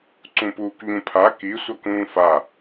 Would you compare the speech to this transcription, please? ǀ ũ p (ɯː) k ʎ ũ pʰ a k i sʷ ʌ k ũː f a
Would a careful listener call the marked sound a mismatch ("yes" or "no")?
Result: yes